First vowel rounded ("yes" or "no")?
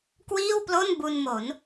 no